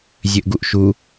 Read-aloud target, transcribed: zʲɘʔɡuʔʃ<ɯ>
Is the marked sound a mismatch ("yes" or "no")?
yes